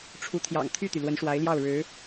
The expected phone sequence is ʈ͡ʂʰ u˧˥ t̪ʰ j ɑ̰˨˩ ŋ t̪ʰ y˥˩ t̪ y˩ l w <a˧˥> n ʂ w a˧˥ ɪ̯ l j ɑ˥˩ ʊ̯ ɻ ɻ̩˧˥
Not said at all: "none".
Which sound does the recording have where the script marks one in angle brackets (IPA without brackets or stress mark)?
ə˧˥